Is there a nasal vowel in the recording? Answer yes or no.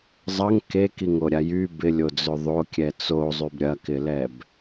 no